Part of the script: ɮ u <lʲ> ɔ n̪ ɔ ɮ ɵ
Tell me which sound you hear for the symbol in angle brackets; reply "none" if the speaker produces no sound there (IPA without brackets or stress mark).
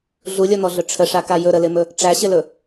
lʲ